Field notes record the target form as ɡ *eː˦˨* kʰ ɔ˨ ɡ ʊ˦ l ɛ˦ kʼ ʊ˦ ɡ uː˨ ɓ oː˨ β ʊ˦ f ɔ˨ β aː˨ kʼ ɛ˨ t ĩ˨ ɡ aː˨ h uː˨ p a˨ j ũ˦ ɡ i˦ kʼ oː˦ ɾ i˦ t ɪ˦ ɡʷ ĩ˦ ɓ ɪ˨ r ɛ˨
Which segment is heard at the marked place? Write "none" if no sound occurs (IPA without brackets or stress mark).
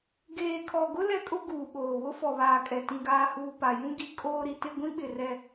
eː˨